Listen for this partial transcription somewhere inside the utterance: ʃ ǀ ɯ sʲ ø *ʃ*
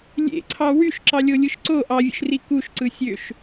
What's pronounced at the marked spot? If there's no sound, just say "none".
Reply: ʃ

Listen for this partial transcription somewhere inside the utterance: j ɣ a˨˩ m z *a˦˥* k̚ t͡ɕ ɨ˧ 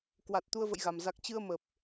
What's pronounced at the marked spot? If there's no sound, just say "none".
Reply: a˨˩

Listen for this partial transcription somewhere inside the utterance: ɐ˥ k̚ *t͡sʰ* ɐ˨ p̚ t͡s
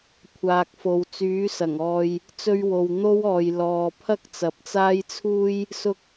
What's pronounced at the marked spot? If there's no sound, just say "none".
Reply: t͡s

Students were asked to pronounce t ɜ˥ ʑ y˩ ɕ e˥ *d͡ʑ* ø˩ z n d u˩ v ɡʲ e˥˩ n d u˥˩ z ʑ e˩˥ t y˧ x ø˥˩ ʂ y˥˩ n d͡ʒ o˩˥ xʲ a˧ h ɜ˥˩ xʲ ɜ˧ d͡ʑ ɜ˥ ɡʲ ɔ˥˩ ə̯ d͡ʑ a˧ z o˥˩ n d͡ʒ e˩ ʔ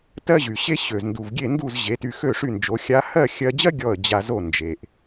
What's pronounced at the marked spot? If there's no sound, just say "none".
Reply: ɕ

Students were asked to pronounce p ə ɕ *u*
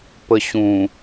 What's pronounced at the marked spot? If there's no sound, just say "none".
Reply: ũ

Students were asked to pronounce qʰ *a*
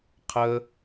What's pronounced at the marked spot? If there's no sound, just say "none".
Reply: ə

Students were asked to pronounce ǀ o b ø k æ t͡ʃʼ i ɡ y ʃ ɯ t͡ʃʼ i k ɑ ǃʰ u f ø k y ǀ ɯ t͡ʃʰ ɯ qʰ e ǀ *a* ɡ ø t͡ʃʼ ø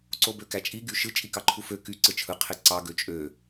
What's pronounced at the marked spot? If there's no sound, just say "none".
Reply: ɑ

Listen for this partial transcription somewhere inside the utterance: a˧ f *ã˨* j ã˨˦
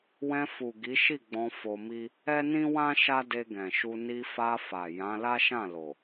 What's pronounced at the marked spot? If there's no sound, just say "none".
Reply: a˨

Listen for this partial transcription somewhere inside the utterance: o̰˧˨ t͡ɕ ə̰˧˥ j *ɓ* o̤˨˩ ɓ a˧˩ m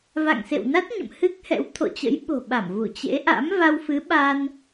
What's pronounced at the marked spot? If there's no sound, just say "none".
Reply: ɓ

